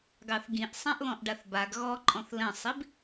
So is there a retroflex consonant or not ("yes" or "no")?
yes